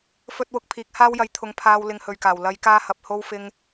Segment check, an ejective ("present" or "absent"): absent